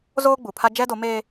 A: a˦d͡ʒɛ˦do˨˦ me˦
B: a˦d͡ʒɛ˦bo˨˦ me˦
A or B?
A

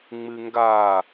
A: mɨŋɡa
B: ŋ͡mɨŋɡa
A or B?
B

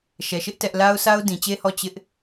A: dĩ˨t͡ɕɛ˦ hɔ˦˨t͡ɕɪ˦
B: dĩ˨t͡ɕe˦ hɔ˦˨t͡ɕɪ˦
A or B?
B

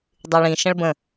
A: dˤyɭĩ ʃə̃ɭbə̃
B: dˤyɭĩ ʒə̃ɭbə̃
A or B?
A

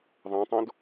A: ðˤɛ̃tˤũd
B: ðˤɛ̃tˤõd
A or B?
B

